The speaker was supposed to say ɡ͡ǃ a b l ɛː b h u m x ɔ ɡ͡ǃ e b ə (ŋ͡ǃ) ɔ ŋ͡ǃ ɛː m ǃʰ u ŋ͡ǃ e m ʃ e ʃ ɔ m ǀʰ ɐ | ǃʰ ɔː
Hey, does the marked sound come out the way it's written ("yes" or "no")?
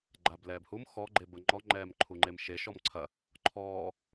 yes